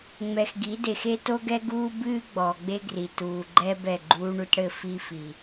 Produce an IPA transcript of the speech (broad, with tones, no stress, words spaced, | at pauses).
ŋ͡mɛ˨xɡi˨˦de˨x e˦to˦ɡɛ˦ ɡuː˦bɨː˦ ɡ͡bɔː˨ɡ͡be˦ɡri˨tuː˨ ɡ͡ǃɛ˦ bɛ˦˨ɡ͡ǃuː˦ɳu˦tɽɘ˦ fi˦fi˨